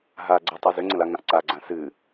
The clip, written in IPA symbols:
ɦa ɡ͡ǀʏtˤɵ zʏŋ͡ǀə̃laŋãʔ ǀaɡ͡ǀã sɨ

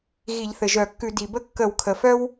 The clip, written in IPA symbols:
ɣi˧˩˧ʎθɘ˩ ʒœ˧˩˧kːʉ˧˩˧ di˩bə˥ kːə˧˩˧wkʰə˩fœ˥w

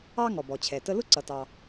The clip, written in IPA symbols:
ɑ˥ ŋɔ˩bɔ˩t͡ɕʰɛ˩ tə˧lʊ˥ ǀʌ˩tɑ˩

